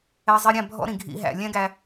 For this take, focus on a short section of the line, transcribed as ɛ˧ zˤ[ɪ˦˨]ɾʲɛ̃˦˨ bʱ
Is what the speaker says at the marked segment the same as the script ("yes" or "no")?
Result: no